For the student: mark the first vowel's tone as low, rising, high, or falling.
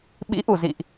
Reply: rising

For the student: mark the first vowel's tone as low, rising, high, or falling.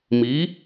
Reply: rising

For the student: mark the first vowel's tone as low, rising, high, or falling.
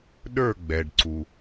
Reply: falling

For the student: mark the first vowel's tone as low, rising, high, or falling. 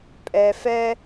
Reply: low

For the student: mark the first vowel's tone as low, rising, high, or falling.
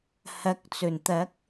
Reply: rising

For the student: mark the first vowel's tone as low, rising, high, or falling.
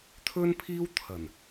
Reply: high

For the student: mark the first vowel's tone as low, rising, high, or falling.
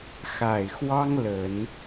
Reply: low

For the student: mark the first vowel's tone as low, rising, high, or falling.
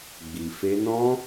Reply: low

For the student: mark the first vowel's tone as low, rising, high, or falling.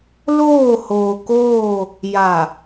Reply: falling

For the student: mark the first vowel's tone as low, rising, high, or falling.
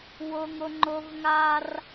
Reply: high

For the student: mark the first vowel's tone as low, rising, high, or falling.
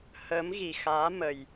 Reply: rising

